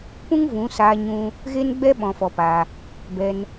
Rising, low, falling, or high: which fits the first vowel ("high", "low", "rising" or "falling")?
high